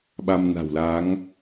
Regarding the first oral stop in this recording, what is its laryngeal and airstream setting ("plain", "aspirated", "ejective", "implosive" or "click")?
implosive